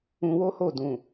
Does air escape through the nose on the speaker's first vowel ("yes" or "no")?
yes